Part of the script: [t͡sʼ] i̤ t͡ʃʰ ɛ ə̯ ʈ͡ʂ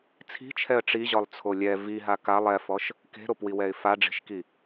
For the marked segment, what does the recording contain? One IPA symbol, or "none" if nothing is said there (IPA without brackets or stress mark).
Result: t͡sʰ